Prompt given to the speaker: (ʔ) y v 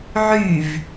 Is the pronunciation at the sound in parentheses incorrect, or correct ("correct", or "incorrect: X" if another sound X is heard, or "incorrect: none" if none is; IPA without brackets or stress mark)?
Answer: incorrect: ʕ